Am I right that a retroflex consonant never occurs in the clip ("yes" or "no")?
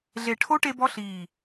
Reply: no